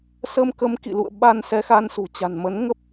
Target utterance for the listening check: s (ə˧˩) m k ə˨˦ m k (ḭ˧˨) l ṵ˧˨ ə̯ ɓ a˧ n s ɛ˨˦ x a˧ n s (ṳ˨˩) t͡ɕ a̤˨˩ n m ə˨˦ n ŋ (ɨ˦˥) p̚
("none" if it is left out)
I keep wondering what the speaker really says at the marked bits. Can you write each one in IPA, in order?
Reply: ə˧, ḭ˧˨, ṳ˨˩, ə˦˥

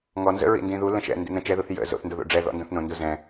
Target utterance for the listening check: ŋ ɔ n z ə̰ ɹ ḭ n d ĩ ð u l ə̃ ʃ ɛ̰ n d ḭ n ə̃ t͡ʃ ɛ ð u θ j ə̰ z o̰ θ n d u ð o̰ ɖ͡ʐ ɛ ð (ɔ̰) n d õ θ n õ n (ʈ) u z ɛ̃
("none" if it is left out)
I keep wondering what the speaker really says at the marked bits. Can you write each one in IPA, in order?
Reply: ɔ̰, d

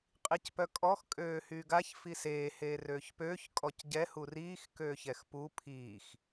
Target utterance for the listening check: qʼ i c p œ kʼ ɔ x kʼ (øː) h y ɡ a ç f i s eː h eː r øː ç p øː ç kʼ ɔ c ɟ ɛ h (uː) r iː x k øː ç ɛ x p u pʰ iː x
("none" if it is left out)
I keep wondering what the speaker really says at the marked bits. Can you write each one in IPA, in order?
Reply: øː, u

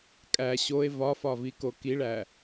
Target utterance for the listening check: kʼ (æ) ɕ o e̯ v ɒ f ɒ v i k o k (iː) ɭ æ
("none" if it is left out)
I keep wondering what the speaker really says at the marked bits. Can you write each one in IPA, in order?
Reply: æ, i

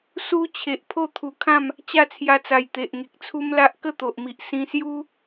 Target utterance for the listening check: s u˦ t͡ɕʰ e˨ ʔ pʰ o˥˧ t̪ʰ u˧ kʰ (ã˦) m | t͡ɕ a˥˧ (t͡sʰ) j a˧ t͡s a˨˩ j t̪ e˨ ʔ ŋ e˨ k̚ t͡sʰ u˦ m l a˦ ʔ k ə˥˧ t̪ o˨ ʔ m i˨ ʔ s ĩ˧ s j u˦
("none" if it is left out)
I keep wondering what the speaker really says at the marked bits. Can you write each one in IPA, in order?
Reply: ã˥˧, t͡sʰ

